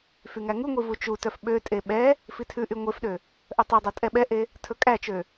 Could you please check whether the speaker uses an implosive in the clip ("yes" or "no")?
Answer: yes